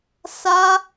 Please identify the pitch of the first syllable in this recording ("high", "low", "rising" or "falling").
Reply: high